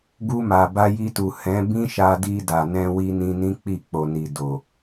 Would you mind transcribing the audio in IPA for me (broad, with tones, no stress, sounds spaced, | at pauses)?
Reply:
ɡ u˧ m a˨ b a˧ j i˧ t u˨ h ɛ̃˨˦ b ĩ˦ ʃ a˧ d i˧ d a˨ n ɛ̃˧ w i˧ n ĩ˧ n ĩ˦ k͡p i˦˨ k͡p o˨ n i˨ d o˨